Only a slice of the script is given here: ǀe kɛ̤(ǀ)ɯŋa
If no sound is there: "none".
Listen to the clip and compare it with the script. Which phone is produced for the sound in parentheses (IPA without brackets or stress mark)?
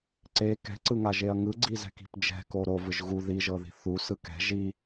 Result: ǀ